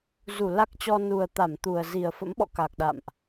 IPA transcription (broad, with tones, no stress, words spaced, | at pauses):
zu˧˩la˦˥k̚t͡ɕɔ˧ nu˨˩ə̯t̪a˧˩mt̪u˨˩ə̯ zi˨˩ə̯fə̰˧˥mɓɔ̰˧˨ ka˨˩k̚ɗa̰˧˨mʔ